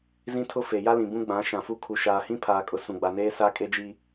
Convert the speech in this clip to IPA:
z ĩ˦ tʰ ʊ˦ f e˨ j a˦ l ĩ˨ b ũ˦ ɡ͡b ã˨˦ ʃ ã˨ f u˦ kʰ u˨ ʃ aː˨ h ĩ˦ pʰ aː˨ kʼ ʊ˨ s ũ˨ ɡ͡b a˨ n eː˦ s a˦ kʼ e˦ d͡ʒ i˦

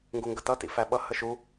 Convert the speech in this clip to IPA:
ŋ ɡ u ŋ ɡ ə t̪ ʌ t̪ ḭ f æ ɓ ʌ h ə ʃ u

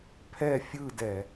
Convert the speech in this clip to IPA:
pʰ ɛ˥˨ fʲ ɯ˥˨ d ɛ˧˩˧

